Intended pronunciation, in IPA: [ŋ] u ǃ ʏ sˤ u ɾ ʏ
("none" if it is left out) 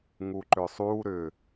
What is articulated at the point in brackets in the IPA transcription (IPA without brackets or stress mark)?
ŋ